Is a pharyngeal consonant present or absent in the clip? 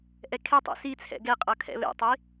absent